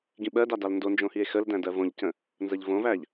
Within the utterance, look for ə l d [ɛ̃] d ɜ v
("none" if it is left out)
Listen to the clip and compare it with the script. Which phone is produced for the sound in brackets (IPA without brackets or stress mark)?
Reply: æ̃